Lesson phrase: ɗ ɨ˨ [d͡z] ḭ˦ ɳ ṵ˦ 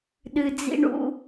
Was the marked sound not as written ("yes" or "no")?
no